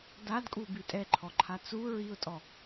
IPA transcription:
dadkʼu bitʼɛǃʰɔǃʰa t͡su ɹiʊ̯tʼɔ

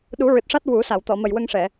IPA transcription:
ɗu˨˩˦ɹɨ˨˩t̚ʂa˦˥t̚ wu˨˩˦ sa˨˩˨wt̪ɔ˨˩˨mə˨˩jwə˧ŋ ʂɛ˨˩˨

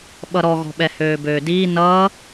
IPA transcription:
ɓʌɾɔɣɔ̤ɓɛ høːbøːdiː nʌː

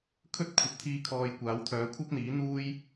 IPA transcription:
kʰɵ˥t̚ kʷʰɐ˨p̚t̪ʰiː˧kʰɔː˨j kʷaː˨˥wt̪ʰœː˨˥ kʷʰɐ˥p̚n̪iː˨˥n̪uː˥j

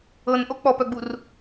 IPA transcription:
ɤnʔo k͡pɔpœɡ͡bur

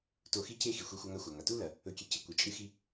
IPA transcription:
to˧xi˥ce˥xi˩ xʷe˧xʷɐ˧ŋa˧ xʷa˩ŋa˩tu˥lɐ˩ | ɵ˧kʲe˧ cɨ˧kʷɨ˩ t͡ʃʼɨ˥xi˥

